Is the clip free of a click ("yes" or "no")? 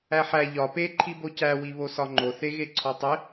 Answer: no